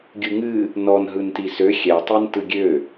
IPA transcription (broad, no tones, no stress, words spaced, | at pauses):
ɡʲɯŋɨ | nɔnɦɯnti sø xʲɛtˤin tɯɡʲø